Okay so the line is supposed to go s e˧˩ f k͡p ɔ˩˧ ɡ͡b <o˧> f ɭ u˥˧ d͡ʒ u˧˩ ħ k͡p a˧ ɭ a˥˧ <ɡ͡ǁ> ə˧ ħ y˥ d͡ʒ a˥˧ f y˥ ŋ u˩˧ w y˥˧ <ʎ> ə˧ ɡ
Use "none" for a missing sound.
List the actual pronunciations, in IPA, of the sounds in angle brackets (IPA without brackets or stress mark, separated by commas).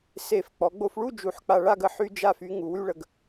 o˧, ɡ, ɭ